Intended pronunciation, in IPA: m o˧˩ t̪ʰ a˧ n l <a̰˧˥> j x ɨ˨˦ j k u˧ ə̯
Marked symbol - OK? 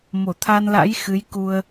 yes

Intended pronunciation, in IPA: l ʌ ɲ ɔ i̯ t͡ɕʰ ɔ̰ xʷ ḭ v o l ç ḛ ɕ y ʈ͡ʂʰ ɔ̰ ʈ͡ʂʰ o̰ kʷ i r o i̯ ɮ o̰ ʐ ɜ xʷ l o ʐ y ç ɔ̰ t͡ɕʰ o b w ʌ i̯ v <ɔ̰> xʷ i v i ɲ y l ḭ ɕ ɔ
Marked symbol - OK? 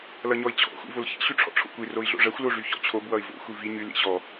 no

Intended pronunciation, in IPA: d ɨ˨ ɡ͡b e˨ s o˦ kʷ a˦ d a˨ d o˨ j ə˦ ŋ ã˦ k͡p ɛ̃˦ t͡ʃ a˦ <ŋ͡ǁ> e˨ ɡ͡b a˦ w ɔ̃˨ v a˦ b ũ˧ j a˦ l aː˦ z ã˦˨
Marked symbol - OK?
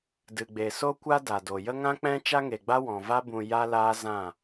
no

